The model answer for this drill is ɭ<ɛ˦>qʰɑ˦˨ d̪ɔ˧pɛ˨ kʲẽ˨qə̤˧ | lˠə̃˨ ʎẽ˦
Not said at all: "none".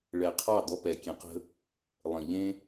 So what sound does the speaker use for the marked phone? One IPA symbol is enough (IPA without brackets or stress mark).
ɛ˨